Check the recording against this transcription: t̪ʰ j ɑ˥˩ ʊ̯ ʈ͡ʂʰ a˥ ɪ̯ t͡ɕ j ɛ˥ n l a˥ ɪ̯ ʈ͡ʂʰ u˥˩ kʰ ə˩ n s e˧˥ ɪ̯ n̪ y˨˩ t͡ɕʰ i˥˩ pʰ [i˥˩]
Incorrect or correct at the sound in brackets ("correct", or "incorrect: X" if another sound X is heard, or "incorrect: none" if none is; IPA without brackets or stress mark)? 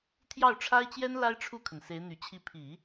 incorrect: i˨˩˦